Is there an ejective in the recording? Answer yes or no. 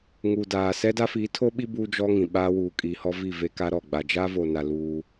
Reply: yes